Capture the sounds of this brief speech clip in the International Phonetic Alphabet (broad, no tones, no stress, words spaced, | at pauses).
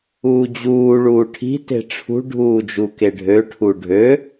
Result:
uːd͡ʑuː ɭuːʈʰi̤ te̤ʈ͡ʂʰṳ ɖʱuːd͡ʒukeɖʱø ʈʰuɖʱø